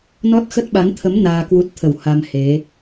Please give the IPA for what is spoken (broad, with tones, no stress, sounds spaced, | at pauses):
n ɔ˦˥ t̚ x ə˦˥ t̚ ɓ a˨˦ n t̪ʰ ə˨˦ m n aː˧ k w u˦˥ t̚ t̪ʰ ə˧˩ w h a˧ m h e˨˦